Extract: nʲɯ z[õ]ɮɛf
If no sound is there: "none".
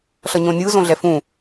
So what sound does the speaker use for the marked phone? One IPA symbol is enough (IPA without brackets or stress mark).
õ